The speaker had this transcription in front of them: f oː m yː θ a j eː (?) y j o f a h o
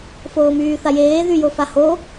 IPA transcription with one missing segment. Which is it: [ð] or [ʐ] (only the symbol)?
ð